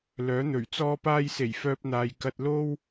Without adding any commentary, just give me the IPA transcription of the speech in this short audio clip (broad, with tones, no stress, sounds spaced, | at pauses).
l œː˨˥ n̪ ɵ˨˩ ɥ t͡s ɔː˥ p aː˥ j s e˨˩ j f œː˧ p̚ n̪ aː˨ j k ɐ˧ t̚ l o˥ w